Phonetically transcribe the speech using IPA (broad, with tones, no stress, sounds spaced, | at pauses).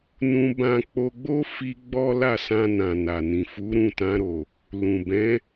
n ũ˧ b ã˧ k͡p o˧ ɡ͡b o˦ f i˧ ɡ͡b ɔ˦ l a˦˨ s ã˧ n ã˨ n a˨ n ĩ˨ f u˨˦ ɾ ũ˦˨ t ã˧ ɾ o˨ | l ũ˨ b ɛ̃˨˦